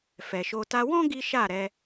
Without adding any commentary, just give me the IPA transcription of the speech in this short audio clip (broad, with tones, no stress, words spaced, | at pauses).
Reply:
fɛ˨ʃo˧ ta˧wɔ̃˦ ɡi˦ ʃa˦˨ɾɛ˧